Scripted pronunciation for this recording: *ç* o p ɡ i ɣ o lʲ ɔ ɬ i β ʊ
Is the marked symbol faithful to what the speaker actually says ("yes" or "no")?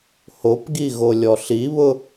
no